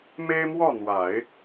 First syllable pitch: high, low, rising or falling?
high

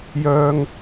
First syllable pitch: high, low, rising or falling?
high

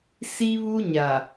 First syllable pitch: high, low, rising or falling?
high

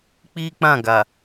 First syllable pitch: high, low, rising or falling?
high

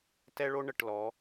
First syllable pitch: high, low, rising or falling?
high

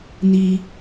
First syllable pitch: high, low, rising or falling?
high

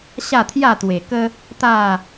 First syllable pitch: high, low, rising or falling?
falling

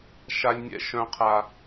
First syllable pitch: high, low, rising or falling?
high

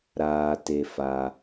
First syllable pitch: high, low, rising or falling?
low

